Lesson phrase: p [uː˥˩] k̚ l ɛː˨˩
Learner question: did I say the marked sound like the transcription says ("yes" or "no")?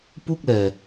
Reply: no